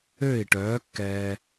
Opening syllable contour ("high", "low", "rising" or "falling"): falling